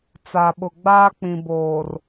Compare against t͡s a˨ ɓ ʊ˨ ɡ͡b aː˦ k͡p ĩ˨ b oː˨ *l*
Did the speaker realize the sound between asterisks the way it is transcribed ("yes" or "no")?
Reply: no